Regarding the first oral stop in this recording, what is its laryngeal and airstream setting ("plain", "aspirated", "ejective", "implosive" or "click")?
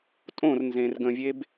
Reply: ejective